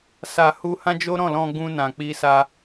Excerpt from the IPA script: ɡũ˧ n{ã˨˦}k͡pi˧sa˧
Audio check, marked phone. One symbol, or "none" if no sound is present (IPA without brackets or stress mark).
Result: ã˨